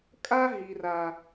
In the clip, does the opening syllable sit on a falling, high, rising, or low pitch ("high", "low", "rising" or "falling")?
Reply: high